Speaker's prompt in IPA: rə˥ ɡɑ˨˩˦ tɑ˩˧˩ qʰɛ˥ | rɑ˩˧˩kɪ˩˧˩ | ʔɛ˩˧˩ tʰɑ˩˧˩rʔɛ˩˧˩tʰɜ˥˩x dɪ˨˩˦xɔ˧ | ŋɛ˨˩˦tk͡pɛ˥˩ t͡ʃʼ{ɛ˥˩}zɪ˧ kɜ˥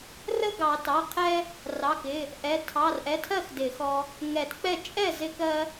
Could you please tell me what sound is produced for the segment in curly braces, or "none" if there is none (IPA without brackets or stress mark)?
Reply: ɛ˥˩